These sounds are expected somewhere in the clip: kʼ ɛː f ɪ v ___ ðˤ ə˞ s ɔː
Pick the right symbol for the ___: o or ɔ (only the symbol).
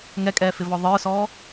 ɔ